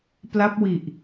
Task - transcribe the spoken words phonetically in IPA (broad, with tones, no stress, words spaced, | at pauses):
pla˦˥p̚wi˨˩ʔ